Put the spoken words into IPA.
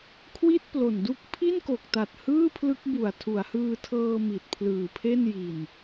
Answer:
kʰwi˥˩t̚plo˨˩ndu˦˥k̚ pʰi˥˩nko˨˩k̚ta˨˩t̚ hɯː˥˩pʰlɯ˦˥k̚bu˨˩a̯ tʰu˩˦a̯hɯː˧tʰɤː˧ mi˨˩t̚pʰlɯː˨˩pʰe˥˩n ji˨˩n

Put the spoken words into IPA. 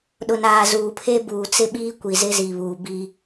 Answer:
ɗʊ˨naː˨zuː˨pʰe˦ buː˨t͡sɪ˦ɓiː˦ kʷi˨zɪ˦zi˨βuː˨ bi˦

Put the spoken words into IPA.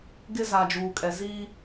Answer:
ɡɪ˦za˨d͡ʒuː˨kʼɛ˨ zi˦

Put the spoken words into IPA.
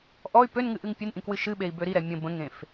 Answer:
ʔɔy̯ pønŋɨ ʔɨŋpʲɨnʔĩ kwɨʃɨɓei̯ bøɾiɾɛ mʲə̃ bə̃ŋẽf

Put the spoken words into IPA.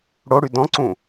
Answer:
ɽoɽy dɔ̃ǀũ

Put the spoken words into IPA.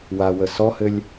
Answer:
wawə sɔhɘlʲ

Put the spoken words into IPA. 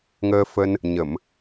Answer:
ŋəː˧fə˧n | ɲə˧˩˨m

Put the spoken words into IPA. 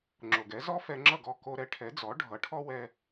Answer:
ŋ͡ǁo˩ɡɛ˩˥ zɔ˥fɛ˧ŋ͡ǁʌ˥˩ɡɔ˥˩ ko˧ɾɛ˩˥ ʈʰɛ˩˥d͡zɔ˩˥ ɖʱʌ˩˥ʈʰɔ˥ wɛ˧

